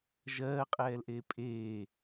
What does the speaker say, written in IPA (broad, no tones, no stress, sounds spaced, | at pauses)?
ʒ ɜː qʼ ɛː l ʔ eː pʼ eː